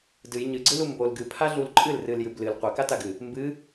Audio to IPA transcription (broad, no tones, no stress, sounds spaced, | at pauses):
d ɨ j ɲ ɨ ɡ͡ǀ ɨ l u m b o l ɡ ɨ pʰ a ɮ u l ǃʼ ɨ l r ɨ l j ɨ b l ɨ l qʷ a k a t a ɡ ɨ | m b ɨ